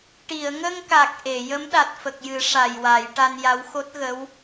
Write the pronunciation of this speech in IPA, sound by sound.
ʈi˨˩˨ə̯ŋə˧ŋka˨˩k̚ ʔe˨˩˨ jə˧˥mɗa˨˩t̚fə˨˩k̚jɨ˨˩˦ ʂa˨˩jwa˨˩˦j ʈa˧nja˧˥w xo˦˥t̚ɣə˧˥w

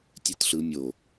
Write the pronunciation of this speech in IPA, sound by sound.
tʲɯtɬɯ mʲo

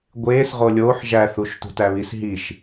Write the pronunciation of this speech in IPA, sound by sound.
ɡʷeːs ʁolʲoːħ ʒæθuʃtṳ tæβis ɦiʃ

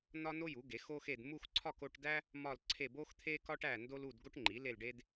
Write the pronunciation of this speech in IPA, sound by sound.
nɒ˥no˥ju˩˥ ɡe˩˥xo˥xe˥˧d mu˥˧xǀʰɒ˥˧ko˥˧ʈdæ˥ | mɒ˥˧lǀʰe˥˧ bo˥xt̪ʰe˥kɒ˥ʈ æ˥˧ndo˥lu˥˧d ɡo˥ʈŋ͡ǃi˩˥ le˥˧lɖe˥d

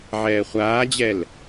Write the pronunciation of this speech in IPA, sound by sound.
ʕɛːχʷaːd͡ʑɛl

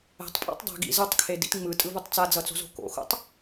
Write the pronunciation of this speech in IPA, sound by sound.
ɛ̤tˤpʼa̰tˤ dˤɛ̤ ɡḭ zɯtˤkʰedḭt ŋ͡mɯtʼɯvutˤ t͡sad͡zʌt͡so̤zo̤ ko̰xo̰tˤ

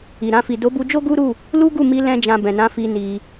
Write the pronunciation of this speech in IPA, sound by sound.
i˨ɾã˧ fi˨do˨˦bu˧d͡ʒo˦ ɡu˦ɾu˦˨ | lu˦ɡu˦˨mi˧ lɛ̃˦d͡ʒã˧bɛ̃˨ nã˨˦fi˧ ni˧

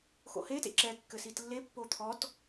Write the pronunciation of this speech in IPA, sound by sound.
xo̰he tḛǁɛ kːɘsitlːe pːot̪ʰɔt

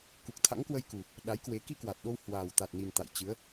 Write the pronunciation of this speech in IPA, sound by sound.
ku˨˩k̚t̪ʰa̰˧˥ŋkwə˧jku˨˩ | ɗa˨˦jkwe˨˦ ki˧ kwa˨˩t̚ɗo˧w hwaː˨˩wt̪a˨˩t̚ni˨˩n t̪a̰˧˨jt͡ɕɨ˨˦ə̯

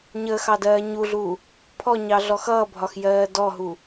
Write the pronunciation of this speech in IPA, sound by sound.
ɲəːxɑdɜː ɲuɮuː | pʰɔɲɑɮɔ xʌːbʱɒxjɜː dɔɦu

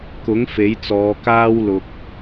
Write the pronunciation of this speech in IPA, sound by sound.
kʊ˨˥ŋ fe˨˥jt͡sɔː˨˧ kaː˥wlʊ˧k̚

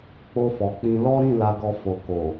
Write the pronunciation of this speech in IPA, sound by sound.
k͡po˧fɔ˨k͡pĩ˧ lɔ˦ɾĩ˦˨ la˧ɡɔ˧ fo˨ko˨

